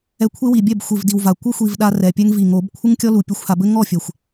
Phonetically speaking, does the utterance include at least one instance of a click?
no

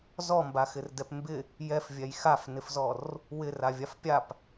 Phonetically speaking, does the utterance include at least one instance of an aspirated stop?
no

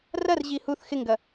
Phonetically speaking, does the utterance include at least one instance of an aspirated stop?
no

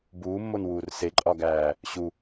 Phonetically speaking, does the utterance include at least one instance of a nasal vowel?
no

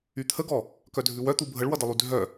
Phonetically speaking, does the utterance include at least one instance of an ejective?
no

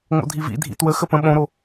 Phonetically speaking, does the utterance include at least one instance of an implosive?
yes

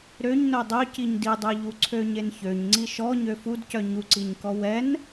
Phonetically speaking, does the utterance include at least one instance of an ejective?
no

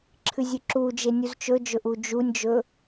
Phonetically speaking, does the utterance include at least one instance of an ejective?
no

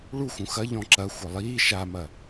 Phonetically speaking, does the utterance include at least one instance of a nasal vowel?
yes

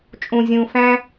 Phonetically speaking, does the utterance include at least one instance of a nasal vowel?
yes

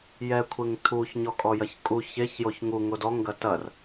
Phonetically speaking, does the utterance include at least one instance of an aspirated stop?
yes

